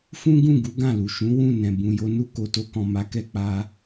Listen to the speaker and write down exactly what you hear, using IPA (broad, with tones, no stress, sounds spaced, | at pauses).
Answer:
f ũ˦ ɡ ũ˦˨ ɡ u˨˦ ɡ ã˦˨ l u˨ ʃ ũ˨˦ w ũ˦˨ n ɛ̃˨ b ũ˨ j o˧ n u˧ k o˨ t o˧ k ɔ̃˨ m a˨˦ k ɛ˧ k͡p a˦